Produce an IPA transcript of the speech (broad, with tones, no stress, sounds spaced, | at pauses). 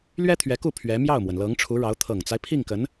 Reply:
l ɥ ɛ˥ t̪ʰ ɥ ɛ˧˥ k u˥˩ pʰ ɥ ɛ˧˥ m j ɑ˥˩ ʊ̯ m w ə˩ n l ɤ˧˥ ŋ ʈ͡ʂʰ u˧˥ ɻ ɑ˧˥ ʊ̯ t̪ʰ ɤ˨˩ ŋ t͡s a˦ ɪ̯ pʰ i˥˩ ŋ k ə˧˥ n